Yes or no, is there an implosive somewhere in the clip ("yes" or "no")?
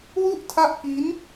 no